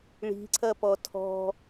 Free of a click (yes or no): no